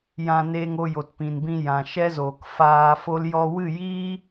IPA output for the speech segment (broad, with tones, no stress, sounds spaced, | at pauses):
j ã˧ n eː˧ ŋ o˧ j o˨ t p ĩ˨ n b ĩ˧ j ã˨ ʃ ɛ˦ z oː˨ k f aː˧ f o˦ l j ɔ˧ w ɨ˦˨ j iː˦